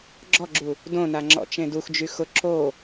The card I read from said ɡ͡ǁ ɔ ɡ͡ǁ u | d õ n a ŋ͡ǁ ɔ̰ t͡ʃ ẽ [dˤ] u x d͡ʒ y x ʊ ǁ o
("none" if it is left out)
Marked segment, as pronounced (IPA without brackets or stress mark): d